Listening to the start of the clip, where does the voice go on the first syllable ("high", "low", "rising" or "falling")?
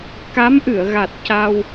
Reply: rising